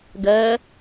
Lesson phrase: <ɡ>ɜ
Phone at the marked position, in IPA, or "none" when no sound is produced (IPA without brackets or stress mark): ɡ